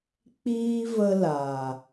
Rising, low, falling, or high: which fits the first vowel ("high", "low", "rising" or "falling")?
high